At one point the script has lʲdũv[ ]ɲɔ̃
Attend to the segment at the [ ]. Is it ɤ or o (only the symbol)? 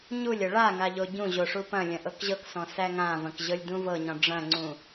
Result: ɤ